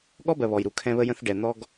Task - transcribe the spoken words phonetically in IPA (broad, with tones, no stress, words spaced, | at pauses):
ɠɔ˦bɜ˨ βɔ˨jɾu˨kʰɛ̃˦ βə˦jə̃˦θ ɖɛ˨n̪ɔ˦ɡ